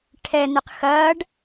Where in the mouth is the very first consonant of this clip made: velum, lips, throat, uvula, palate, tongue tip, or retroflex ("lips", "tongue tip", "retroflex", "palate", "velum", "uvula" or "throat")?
retroflex